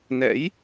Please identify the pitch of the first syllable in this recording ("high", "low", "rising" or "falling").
rising